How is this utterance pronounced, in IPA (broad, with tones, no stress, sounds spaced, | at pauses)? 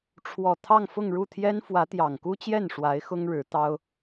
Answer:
ʈ͡ʂʰ w ɔ˨˩ t̪ʰ ɑ˥˧ ŋ f ʊ˥˧ ŋ ɻ u˥˩ t̪ʰ j ɛ˥ n f w ä˧˥ t̪ j ɑ˨˩ ŋ k u˥ t͡ɕ j ɛ˥˩ n ʂ w a˧˥ ɪ̯ x ʊ˥ ŋ ɻ ɻ̩˧˥ t̪ ɑ˥ ʊ̯